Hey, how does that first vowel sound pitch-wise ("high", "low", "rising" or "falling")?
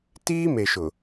high